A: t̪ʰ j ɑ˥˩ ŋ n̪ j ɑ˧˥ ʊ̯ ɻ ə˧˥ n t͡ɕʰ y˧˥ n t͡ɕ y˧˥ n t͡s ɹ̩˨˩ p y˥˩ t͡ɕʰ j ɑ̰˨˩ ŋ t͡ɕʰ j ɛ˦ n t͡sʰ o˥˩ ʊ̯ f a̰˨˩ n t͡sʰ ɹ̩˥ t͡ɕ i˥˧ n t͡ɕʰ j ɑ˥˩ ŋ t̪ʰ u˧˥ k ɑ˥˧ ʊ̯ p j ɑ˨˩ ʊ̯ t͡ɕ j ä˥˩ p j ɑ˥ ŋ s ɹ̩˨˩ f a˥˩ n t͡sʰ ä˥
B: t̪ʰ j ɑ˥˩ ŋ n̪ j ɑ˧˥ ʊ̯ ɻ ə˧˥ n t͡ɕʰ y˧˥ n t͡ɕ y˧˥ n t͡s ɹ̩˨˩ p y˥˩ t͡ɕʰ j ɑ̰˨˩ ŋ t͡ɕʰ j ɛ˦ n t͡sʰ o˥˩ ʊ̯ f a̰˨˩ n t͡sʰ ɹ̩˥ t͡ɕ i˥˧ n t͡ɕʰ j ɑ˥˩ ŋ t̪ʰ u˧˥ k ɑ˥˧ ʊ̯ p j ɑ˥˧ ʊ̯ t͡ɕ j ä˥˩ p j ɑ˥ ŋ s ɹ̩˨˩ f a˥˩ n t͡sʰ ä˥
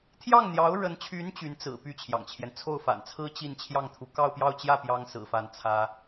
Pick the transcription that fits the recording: B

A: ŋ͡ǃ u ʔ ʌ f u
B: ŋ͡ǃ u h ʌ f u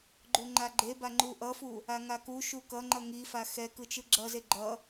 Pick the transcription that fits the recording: A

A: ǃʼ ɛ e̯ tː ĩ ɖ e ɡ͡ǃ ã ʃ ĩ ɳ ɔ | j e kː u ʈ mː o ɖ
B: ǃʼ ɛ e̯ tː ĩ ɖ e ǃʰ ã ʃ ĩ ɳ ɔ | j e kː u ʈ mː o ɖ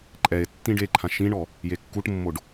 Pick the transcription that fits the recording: B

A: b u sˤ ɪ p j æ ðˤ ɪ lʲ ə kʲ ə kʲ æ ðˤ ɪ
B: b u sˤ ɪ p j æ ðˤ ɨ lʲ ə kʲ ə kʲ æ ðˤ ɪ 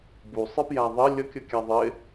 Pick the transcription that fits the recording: A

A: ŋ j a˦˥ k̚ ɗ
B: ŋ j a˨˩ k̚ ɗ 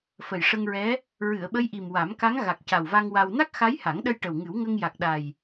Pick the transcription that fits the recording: B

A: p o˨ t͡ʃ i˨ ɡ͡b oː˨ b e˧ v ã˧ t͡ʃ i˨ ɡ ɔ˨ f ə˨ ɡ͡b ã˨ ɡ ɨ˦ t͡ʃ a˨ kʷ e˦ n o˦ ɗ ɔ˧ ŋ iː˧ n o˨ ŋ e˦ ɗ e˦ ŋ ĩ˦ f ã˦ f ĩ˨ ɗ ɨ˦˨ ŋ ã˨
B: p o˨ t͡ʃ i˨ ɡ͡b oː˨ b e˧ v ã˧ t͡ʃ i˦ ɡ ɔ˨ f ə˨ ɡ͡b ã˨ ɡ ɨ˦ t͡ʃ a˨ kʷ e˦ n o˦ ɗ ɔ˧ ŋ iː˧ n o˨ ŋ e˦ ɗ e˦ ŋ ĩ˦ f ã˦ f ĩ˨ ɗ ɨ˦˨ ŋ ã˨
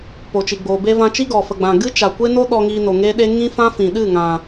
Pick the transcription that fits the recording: B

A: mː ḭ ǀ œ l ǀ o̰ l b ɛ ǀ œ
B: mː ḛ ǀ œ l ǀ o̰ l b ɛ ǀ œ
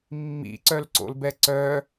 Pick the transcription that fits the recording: A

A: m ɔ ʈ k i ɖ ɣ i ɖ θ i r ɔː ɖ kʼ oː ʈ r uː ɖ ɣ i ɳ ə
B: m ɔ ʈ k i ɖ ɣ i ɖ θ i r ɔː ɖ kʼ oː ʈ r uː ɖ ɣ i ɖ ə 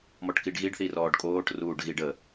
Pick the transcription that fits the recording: B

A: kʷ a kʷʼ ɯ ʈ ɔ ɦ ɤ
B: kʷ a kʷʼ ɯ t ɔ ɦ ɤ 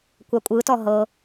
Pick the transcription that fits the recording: B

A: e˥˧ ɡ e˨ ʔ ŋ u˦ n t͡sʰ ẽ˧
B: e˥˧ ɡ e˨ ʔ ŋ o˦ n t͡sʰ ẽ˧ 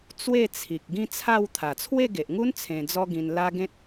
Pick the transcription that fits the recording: A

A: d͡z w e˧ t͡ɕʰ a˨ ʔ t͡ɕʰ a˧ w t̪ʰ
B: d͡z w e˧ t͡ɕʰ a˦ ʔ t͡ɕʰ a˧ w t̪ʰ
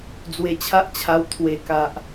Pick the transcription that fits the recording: B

